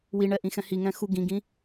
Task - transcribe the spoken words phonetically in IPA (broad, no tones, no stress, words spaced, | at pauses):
wiɳɛ ʔĩxɛ̃hiŋɛ̃ xu ɡĩɡĩ